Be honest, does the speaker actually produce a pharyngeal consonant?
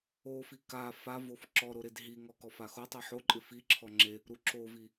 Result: yes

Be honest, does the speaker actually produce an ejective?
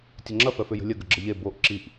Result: no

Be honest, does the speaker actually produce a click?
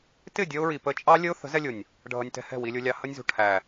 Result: no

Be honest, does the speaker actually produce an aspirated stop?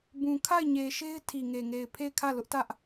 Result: yes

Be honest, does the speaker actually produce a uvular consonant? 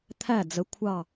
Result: no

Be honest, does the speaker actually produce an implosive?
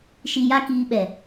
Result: yes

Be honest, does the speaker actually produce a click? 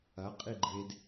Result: yes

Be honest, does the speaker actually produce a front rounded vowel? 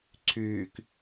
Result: yes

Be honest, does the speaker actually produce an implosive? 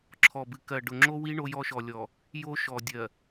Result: no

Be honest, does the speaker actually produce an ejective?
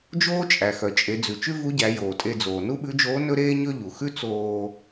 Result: yes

